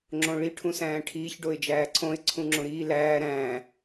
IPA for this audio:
ŋ͡ǁõɭi ʈʰũsæ̃ːʈʰiːç ɖoɪ̯d͡ʒæːǀʰõɪ̯ ǀʰũŋ͡ǁõɾiː læː ɾæ̃ː

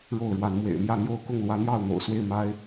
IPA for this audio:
ɻo˥˨ʊ̯ɻwa˨˦nmwḛ˨˩ɪ̯ mjä˥˨n̪jo˥˨ʊ̯ kʊ˥˨ŋ lwä˨˦n̪jɑ˥˨ʊ̯n̪o̰˨˩ʊ̯ swe˥˨ɪ̯ma˦ɪ̯

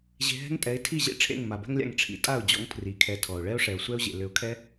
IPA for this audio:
ʑe̤˧ɦɛ̤˦ŋtʼɛ˨˦ɪ̯ tʰi˦˨ʑḛ˦ ʈ͡ʂʰḛ˦˨ŋma˨bɛ̤˦ŋlʲa̰˧ŋ ʈ͡ʂʰḭ˨tʼa˦˨ʊ̯d͡ʑɔ̰˧ŋ pʰri˨˦kʰɛ˧tʰɔ˨ʊ̯ ɭɛ˦ʊ̯ʂɛ˨ʊ̯sʷɛ˦ʊ̯ʑḛ˨ lʏ˨˦ʊ̯kʰɛ˦

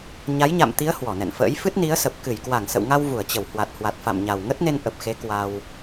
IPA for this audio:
ɲa˨˦jɲa̰˧˨mt̪i˨˦ə̯ hwɔ˧˩nɛ̰˧˨nfə̰ː˧˥j fɨ˦˥t̚ni˨˦ə̯sə˨˩p̚ kɨ˧˩jkwa˧˩ŋ sə̰˧˨wŋa˧w vu˧˩ə̯t͡ɕə˧˩w hwa˨˩t̚ hwa˨˩t̚ fa̰˧˨mɲa˨˩wŋə˦˥t̚ne˧n ʔə˨˩p̚xe˨˦ kwa˧w

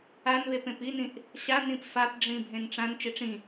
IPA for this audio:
anβep ẽpinĩʔ | ɕanĩp fapɖ͡ʐĩ bʱẽnʈ͡ʂãn t͡ʃeʈ͡ʂĩ

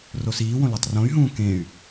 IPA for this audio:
rosiːwõ lɔtˤrõy̯ɦũː kẽy̯

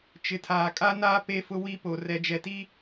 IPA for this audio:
t͡ʃɪ˨tʰaː˨kʼa˦naː˦ pe˦fʊ˦wi˦po˨ rɛ˨d͡ʒɛ˨ti˦

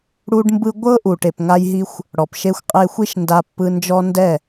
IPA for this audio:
ɽu˧ɖmbɯ˧ɡʷɤ˦ ʔu˨ʈe˨pŋa˧jɦi˧xʷ | ɽɔ˨pʃe˧xʷqʼe˧xʷi˦ʃ nda˧pːɯ˧ nd͡ʒɔ˦ndɛ˦˨

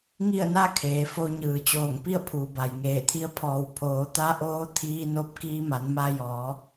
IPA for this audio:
ŋi˥˨ə̯na˥˨ kʰeː˩˧ fo˧ɲɯː˩ t͡ɕoː˧˩ŋpi˥˨ə̯ pʰuː˩ba˩jŋeː˧˩t̪ʰi˧˥ə̯ pʰɔː˩w pʰoː˩˧t̪a˧˥ʔoː˧˥ t̪ʰiː˧ no˧p̚ kiː˧ma˩˧n ma˧jɔː˩˧

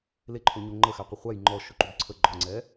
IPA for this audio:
leǃʰo ɲoŋ͡ǃəxæqʷə χʷæj ŋ͡ǃɔ ʃʊǃubǀʰə ɡ͡ǃɔŋ͡ǀɛ

